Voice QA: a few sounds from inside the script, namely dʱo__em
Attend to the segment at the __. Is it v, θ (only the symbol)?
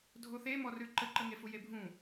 θ